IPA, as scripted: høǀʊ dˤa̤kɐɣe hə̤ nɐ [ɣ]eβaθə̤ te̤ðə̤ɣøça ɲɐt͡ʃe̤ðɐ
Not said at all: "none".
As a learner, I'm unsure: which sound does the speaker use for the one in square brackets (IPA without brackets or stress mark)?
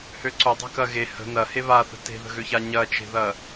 h